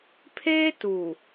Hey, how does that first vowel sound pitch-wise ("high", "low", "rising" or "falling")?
high